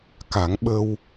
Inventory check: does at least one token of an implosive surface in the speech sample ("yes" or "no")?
yes